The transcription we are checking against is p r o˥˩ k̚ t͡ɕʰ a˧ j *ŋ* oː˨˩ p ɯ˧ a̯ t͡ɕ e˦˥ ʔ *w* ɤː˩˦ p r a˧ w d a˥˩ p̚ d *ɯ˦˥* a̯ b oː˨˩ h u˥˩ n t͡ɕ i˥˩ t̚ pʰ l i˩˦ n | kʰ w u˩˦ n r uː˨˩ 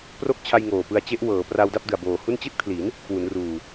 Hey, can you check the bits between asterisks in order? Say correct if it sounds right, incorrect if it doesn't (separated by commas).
correct, correct, incorrect